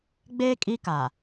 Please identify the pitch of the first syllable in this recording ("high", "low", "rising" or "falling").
high